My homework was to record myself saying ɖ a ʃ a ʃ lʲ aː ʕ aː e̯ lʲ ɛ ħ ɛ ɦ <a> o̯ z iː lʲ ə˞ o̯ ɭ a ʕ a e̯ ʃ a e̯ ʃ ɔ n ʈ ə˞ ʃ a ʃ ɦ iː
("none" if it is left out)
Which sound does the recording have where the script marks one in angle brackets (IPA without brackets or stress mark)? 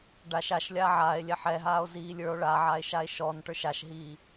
aː